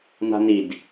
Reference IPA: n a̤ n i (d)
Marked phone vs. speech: correct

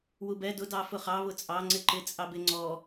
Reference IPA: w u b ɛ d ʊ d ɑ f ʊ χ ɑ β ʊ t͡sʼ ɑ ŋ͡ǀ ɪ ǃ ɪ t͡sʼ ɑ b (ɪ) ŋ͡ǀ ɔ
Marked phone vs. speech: correct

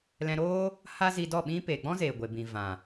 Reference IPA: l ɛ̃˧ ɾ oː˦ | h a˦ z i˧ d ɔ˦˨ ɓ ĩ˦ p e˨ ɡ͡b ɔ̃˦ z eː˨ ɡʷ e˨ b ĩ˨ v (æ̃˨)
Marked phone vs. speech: incorrect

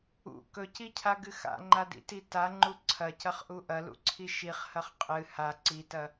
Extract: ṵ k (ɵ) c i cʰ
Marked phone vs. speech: correct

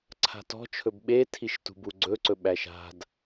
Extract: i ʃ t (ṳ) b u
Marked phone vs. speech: correct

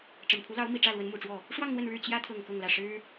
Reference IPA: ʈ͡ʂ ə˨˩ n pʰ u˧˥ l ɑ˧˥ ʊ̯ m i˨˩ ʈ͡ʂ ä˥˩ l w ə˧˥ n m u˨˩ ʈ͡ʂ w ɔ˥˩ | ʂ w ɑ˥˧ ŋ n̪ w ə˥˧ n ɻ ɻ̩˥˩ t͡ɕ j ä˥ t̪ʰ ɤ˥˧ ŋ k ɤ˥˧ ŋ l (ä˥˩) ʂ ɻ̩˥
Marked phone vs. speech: correct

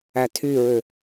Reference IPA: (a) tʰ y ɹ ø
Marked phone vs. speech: incorrect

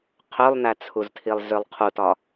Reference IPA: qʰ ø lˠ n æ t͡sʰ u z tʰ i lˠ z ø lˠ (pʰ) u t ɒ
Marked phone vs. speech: incorrect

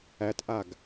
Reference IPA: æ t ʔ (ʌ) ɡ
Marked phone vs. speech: incorrect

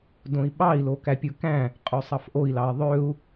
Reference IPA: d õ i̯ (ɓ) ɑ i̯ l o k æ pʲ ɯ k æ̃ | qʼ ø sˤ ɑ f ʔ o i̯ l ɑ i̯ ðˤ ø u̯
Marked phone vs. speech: correct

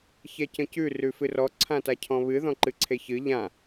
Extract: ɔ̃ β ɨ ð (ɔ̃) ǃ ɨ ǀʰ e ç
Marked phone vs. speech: correct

